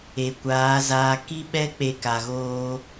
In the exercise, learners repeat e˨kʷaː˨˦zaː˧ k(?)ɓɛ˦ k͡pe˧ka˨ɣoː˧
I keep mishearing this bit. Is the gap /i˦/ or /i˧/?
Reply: i˦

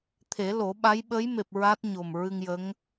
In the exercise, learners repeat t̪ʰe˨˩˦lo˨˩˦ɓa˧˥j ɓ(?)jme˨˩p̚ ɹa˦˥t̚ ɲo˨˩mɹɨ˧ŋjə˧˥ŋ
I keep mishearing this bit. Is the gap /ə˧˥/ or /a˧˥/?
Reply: ə˧˥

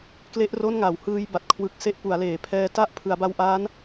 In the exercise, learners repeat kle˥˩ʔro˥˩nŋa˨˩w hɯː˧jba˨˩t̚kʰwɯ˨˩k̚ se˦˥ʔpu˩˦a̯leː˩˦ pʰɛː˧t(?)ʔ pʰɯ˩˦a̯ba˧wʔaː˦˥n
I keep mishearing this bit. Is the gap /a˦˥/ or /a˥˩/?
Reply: a˥˩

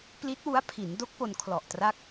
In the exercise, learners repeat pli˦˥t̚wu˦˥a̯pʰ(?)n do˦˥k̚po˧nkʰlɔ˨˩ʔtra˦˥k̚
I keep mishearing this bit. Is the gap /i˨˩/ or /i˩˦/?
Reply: i˩˦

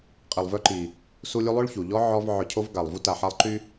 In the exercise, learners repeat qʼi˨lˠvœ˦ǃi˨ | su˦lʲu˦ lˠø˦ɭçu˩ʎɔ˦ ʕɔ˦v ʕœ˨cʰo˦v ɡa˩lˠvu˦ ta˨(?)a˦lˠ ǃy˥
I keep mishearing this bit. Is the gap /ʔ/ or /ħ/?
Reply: ħ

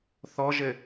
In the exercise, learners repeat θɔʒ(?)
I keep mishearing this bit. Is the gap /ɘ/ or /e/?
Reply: ɘ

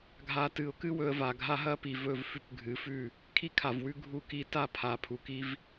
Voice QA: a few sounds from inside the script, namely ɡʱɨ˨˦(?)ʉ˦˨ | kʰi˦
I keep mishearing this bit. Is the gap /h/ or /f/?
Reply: f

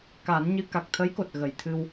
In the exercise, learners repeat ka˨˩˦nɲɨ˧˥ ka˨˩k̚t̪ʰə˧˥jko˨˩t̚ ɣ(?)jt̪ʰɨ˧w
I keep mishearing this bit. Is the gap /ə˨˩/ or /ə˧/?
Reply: ə˨˩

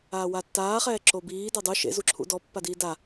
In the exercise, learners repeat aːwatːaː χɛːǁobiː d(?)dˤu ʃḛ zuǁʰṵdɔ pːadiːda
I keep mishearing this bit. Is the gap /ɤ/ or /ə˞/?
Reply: ɤ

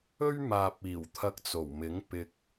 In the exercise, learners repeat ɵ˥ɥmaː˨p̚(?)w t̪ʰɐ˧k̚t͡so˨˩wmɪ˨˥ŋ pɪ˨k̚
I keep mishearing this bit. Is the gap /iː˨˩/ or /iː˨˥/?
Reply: iː˨˩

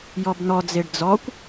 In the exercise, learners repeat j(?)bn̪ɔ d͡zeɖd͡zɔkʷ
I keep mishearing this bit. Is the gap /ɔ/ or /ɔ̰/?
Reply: ɔ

